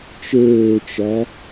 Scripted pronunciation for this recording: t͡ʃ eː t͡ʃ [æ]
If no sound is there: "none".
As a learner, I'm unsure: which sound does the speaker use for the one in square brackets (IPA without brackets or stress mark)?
æ